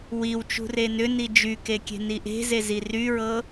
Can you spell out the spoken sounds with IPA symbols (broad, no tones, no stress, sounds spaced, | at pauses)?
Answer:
w i w t͡ʃ ṳ r e n ʏ n i d͡ʒ y k e kʲ e̤ n i ʔ e̤ z e z i r y ɹ ɤ